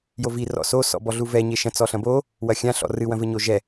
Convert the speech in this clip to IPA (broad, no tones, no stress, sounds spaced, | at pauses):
j o v i r ɔ̰ s o s ɔ̰ b ɔ ɮ u v ɛ ɲ e ʃ ɐ̃ t͡s ɔ ɬ ɐ̃ b o | w ɐ xʲ ã ɬ ɔ̰ r ɨ w ɐ̃ v ɘ ɲ o ʒ ɛ